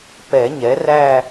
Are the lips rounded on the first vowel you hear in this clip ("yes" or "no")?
no